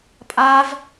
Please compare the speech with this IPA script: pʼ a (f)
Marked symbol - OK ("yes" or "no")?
no